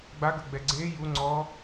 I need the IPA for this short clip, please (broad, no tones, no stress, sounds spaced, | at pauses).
ɡ͡b a ɡ ɤ ɡ͡b ɛ ɡ͡ǀ e j u ŋ͡ǀ ɔ